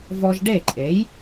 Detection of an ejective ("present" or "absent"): present